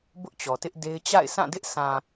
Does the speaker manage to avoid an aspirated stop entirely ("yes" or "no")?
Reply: yes